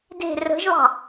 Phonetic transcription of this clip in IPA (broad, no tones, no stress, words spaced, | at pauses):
de̤ rə̤ʒβɑ̤